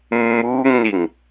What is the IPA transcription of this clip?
mː uː ŋ n i ŋ

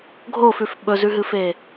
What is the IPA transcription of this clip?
ɡʱ o f ʉ f ɓ ɵ z ʉ ɦ ɨ f e

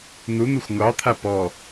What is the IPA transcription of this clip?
n̪ u n̪ u xʷ ŋʷ ɑ t̪ʰ a p ɔ

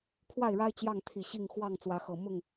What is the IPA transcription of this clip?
kʰ w a˥˨ ɪ̯ ɻ a˦ ɪ̯ t͡ɕ j ɑ˥˨ ŋ t̪ʰ i˨˩ ɕ i˥˨ ŋ x w ɑ˥˨ ŋ t͡s w ä˨˦ x ɤ˨˩ m ʊ˥˨ ŋ

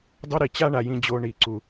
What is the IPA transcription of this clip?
dˤ o˥ ɾ i˨ t͡ɕ a˦ ɳ a˩ j ĩ˨ d͡ʑ o˨ ɳ i˩ ǀ u˩

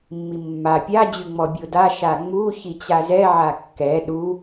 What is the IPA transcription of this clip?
mː i mː a pʲ a d͡ʑ y ŋ͡m ɔ bʲ o d a ʃ a ŋ͡m u ç i t͡ɕ a z ɛ ʕ a kː ɛ ɗ u

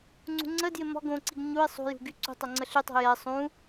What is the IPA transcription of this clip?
ŋ͡ǀ ṳ ŋ͡ǀ ə d j ɪ m ɔ̤ ɡ õ ǀ i ɡ ɲ u ɪ̯ sˤ ṳ j ṳ ɡ y ǀ ṳ tˤ o ŋ͡ǀ ə ɬ y tˤ o̤ j ɛ sˤ ũ

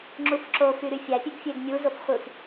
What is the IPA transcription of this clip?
ŋ͡ǁ u f ǁ o f y ɾ y fʲ æ pʲ ø ɡ fʲ e ɡ mʲ u z o f χʷ ɯ f

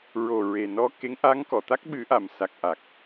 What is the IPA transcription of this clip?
ɹ o˨˩ ɹ e˨˩ n ɔ˧˥ k e˧˥ ŋ ʔ a˧˥ ŋ k ɔ˨˩˨ t̪ a˦˥ k̚ ɓ ɨ˨˩˦ ʔ a˨˩˨ m s a˨˩ k̚ ʔ a˨˩ k̚

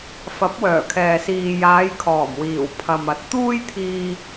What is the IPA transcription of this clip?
f ɐ˨˥ p̚ w œː˨˩ kʰ ɛː˨ s iː˨ j aː˨˧ j kʰ ɔː˨˩ m w iː˨˩ w pʰ ɐ˨ m ɐ˨˥ t̚ t̪ uː˥ j t̪ʰ iː˥

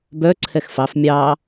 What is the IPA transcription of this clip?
b œ ǀʰ ɛ x f ɑ f mʲ ɑ

